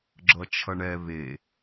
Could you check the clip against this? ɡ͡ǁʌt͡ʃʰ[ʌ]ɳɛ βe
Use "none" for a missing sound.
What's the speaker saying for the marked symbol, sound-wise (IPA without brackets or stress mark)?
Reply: ʌ